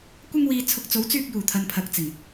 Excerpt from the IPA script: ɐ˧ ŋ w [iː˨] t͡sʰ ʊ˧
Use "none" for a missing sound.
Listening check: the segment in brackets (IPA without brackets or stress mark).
iː˨